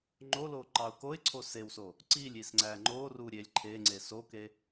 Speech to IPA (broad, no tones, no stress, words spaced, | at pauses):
ŋ͡ǃolo ǃɑʊ̯koɪ̯ǀʰo sewso | ǀilʲ isŋ͡ǀæŋ͡ǃoru ɾʲelʲ ǃʰeŋ͡ǀe soke